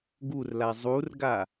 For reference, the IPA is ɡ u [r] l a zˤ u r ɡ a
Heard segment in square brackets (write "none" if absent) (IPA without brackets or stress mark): r